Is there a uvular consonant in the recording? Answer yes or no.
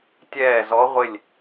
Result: yes